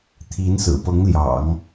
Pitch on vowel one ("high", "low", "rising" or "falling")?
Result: rising